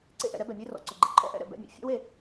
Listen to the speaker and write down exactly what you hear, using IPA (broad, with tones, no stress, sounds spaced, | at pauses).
ǀ ḛ˦ ʔ ɛ̰˨ ɾ ɛ˦ b ɛ˨ mʲ e˦ r ɔ̰˨ ǀ ʊ˨ ɡ͡ǃ ɛ̰˨ ǃʰ ɔ̰˦ ʔ ɛ̰˦˨ ɾ ɛ̰˨ b ɛ̰˦˨ mʲ ɛ̰˨ fʲ ɔ̰˦ w e˨